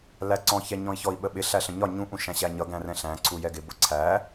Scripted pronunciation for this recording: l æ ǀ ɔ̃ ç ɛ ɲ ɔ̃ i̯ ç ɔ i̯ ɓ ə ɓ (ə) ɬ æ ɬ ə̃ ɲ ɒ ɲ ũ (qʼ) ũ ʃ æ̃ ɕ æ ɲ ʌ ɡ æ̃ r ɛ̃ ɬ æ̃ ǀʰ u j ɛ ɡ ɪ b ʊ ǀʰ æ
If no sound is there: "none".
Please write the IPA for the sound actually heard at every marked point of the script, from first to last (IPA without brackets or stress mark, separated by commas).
ɪ, ʔ